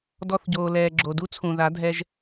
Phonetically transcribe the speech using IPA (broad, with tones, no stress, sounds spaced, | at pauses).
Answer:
d ɔ˧ θ ɟ oː˨ l ɛː˨ ɡ͡ǁ o˨ d u˦ t͡sʰ ũ˨ ð a˨˦ dʱ ɛ˧ ʒ